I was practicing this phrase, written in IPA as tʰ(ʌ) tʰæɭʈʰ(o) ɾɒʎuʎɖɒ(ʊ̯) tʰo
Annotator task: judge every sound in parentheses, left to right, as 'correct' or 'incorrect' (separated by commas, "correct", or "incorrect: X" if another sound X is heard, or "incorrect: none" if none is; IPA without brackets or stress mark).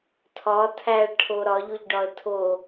incorrect: ɒ, correct, incorrect: ə̯